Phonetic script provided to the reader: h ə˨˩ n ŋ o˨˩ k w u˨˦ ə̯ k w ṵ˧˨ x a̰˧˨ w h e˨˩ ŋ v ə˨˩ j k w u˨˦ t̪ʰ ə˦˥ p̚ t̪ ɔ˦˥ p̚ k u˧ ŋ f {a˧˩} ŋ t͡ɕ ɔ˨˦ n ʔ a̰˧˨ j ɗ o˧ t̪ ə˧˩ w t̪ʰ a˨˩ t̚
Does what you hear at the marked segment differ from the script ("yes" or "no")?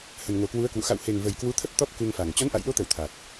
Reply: yes